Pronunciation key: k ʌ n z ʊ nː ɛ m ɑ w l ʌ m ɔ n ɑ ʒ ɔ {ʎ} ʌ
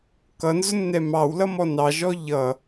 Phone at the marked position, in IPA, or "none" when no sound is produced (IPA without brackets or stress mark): ʎ